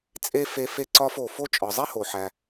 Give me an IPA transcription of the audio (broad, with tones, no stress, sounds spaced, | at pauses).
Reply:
t͡sʼ e˥ f e˦ f e˦ ǀ ɒ˦ f o˨ f o˥ t͡ʃʼ ɒ˨ zˤ i˥ h o˨ ħ æ˨